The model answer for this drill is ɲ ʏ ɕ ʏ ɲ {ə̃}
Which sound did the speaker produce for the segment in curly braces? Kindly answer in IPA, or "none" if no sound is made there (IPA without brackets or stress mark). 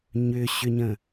ə̃